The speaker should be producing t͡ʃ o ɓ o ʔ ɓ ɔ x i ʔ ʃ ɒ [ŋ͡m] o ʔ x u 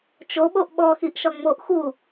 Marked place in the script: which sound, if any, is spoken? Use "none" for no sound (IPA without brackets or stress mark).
ŋ͡m